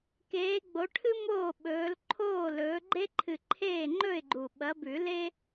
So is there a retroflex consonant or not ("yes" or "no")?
yes